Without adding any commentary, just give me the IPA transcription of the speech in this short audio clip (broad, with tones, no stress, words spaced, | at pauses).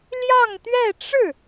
ljɑ˥˧ŋt̪ɥɛ˥˧ʈ͡ʂɻ̩˥˩